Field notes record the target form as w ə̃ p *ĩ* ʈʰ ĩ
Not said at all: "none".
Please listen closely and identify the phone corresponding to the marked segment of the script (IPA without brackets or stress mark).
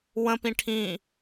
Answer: ĩ